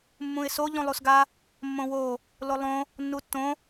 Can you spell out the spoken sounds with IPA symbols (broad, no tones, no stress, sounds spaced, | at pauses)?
mː ũ ɪ̯ s o ʎ ũ lˠ u s ɡ a | mː õ w o | l o lˠ õ | nː u tː õ